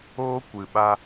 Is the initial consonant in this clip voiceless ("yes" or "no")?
yes